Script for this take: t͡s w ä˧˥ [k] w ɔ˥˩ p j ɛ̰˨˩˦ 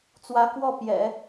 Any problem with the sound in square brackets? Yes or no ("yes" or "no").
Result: no